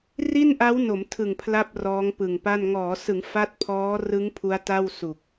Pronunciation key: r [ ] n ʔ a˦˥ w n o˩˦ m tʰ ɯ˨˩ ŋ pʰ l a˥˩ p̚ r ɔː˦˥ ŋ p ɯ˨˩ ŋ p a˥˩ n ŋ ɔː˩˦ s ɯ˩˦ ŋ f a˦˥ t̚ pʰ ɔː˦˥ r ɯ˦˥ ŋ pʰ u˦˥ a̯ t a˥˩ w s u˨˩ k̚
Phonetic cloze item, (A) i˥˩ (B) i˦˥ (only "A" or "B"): A